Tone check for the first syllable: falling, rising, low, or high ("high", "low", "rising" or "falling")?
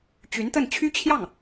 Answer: rising